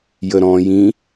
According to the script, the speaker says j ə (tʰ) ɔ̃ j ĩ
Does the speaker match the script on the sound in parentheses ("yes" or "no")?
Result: no